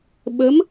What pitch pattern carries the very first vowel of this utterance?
rising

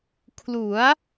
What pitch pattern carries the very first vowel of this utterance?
rising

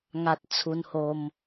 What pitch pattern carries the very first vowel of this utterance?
high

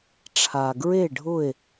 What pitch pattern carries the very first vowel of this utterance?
low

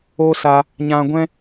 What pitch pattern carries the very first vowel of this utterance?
high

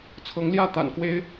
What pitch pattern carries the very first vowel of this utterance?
rising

